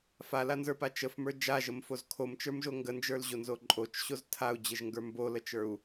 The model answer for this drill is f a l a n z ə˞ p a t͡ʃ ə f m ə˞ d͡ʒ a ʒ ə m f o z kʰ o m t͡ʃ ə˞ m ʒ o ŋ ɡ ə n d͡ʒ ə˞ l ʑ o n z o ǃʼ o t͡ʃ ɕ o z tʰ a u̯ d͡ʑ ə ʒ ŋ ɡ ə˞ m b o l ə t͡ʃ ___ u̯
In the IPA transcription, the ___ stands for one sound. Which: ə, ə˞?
ə˞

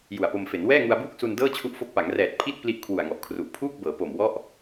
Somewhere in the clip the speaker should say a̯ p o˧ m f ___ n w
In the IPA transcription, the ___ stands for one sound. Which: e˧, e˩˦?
e˩˦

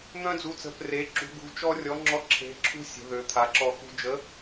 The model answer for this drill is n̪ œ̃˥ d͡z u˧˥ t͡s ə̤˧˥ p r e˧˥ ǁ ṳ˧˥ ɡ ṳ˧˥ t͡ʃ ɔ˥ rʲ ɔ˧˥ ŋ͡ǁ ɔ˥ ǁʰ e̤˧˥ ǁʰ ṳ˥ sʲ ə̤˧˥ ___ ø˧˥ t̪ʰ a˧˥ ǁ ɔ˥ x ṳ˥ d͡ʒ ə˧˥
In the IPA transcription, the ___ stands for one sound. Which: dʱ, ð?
ð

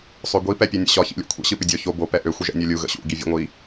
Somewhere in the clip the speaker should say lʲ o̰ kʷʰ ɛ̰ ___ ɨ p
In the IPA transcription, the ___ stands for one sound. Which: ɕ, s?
ɕ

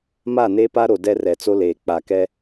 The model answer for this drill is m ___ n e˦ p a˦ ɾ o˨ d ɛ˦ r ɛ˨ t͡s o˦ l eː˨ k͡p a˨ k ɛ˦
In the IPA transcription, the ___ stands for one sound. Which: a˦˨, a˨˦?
a˦˨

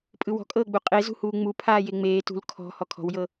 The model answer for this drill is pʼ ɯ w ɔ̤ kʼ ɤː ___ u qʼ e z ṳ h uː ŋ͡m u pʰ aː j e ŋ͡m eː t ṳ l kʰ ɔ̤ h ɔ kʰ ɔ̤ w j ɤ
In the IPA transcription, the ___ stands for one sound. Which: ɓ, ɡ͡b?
ɡ͡b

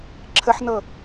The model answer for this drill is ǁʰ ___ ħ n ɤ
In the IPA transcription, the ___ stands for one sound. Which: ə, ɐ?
ə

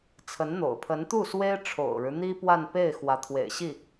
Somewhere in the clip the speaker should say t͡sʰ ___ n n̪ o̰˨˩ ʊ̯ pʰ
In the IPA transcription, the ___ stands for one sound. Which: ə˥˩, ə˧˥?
ə˧˥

